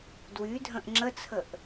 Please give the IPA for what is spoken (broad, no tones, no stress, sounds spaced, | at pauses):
d w y dʱ ə̃ ʔ ŋ͡ǁ ə t͡sʰ ə ʔ